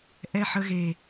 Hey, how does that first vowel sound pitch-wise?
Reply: low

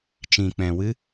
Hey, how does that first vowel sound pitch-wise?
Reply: low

